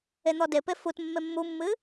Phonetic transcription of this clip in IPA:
e n̪ ɔ d e p e f u t mː e mː u mː ɨ

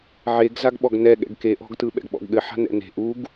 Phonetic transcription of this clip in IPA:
ʕ e ɡ z a ɡ ɓ ɔ ɡ n ɛ ɠ ɛ̰ ɡ k e ʔ ɔ̤ ɡ t ɯ ɓ ɛ̰ ɡ ɓ ɔ̰ ɡ ɠ ɘ ħ a̤ n ɛ̰ n e̤ ʔ u ɡ

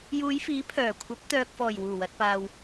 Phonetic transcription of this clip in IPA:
j uː˨˧ j f iː˨˥ pʰ œː˨˩ kʷʰ ɐ˨˥ p̚ t̪ œː˨ k̚ f ɔː˨˩ j w uː˨˩ w ɐ˨ t̚ p aː˨ w

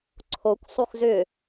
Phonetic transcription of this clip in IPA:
ǀʰ o kʷ sˤ u x z ʏ

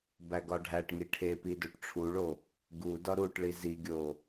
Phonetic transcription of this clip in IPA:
b æ ɡ ɒ ɖʱ æ ʈ ŋ i ʈʰ e p i d o ʈ ʈ͡ʂʰ u ɭ o | ɡ u d ɒ ɾ u ʈ ɭ i z i ɡʲ o

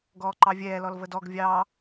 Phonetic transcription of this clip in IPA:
ɡ ɔː ǃ ɑ vʲ ɛː l ɔ l v ə d ɔ ɡ vʲ ɑ

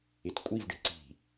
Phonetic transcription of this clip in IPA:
ɪ t kʷʼ i v ɖ e̤ ǀ i̤

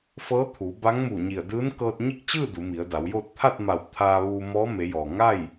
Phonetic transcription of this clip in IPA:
f ɤː˧˥ t̪ʰ u˩˧ b a˧˥ ŋ m uː˧˩ ɲ i˧˩ ə̯ d ɯː˧˥ n k ɤː˧ t̚ ɲ i˥˨ k̚ t͡ɕ ɯː˥˨ d u˩˧ m i˩˧ ə̯ d a˩˧ w j oː˥˨ t̚ t̪ʰ a˥˨ t̚ m a˧˩ w t̪ʰ aː˧ ʋ uː˧ m ɔː˧˥ m e˩˧ j ɔː˩ ŋ a˥˨ j

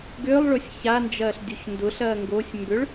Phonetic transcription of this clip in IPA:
ɡ ʏː lˠ ɭ ʊ sʲ ç a n d͡ʒ ɐː ɬ dʲ o ç n d ʊ ɬ ɐː ŋ ɡ o sʲ m b ʏ ɭ

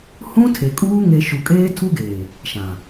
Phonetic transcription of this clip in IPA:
h ũ˦ tʰ e˨ kʼ uː˦ ŋ e˨ ʃ u˨ kʼ eː˦ tʰ u˦ ɡ eː˨ | ʃ ã˨

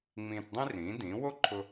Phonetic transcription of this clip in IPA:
ŋ͡m ĩː˧ t dˤ ĩ˥ r ĩː˩˥ d ĩː˩˥ w o˥ ǃʰ ʊ˧

